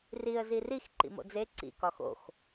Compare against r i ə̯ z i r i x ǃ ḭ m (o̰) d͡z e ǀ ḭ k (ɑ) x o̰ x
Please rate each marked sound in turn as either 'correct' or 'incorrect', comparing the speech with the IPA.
correct, incorrect: ɒ

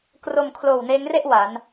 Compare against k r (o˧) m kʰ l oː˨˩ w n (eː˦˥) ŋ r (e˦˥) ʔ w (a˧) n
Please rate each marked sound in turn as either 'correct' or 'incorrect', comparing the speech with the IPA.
correct, correct, incorrect: e˥˩, incorrect: a˩˦

